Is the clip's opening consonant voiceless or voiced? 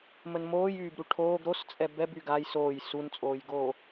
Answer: voiced